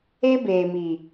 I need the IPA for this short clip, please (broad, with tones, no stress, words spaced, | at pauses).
e˦beː˨mi˨